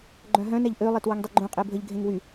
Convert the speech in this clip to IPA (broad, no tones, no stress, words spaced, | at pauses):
ɡ͡ǃœ̃ɦœ̃nɛʎ ʔølˠet wəŋdˤyɡ͡ǃũqʼe bʱəʎ ɡʱẽŋwy